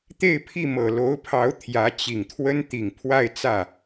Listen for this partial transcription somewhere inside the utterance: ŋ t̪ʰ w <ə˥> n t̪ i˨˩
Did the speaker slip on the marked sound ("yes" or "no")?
no